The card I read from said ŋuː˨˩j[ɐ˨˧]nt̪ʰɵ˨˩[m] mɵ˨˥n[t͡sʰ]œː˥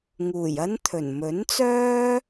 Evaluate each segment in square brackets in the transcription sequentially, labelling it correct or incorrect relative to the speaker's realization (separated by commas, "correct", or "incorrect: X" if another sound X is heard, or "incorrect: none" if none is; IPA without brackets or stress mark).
incorrect: ɐ˥, incorrect: n, incorrect: t͡s